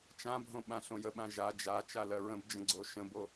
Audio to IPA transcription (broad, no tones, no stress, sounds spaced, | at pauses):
t͡ʃ ã bʱ õ ɓ ã ɬ õ j ə ɓ ã ʒ a d͡ʒ a t͡ʃ a l ɜ ɹ ə̃ b d͡ʒ ə̃ ɡ͡ǀ o ʃ ə̃ b o